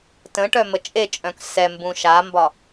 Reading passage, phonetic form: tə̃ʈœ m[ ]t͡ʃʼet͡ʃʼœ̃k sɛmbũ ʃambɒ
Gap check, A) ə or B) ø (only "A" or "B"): A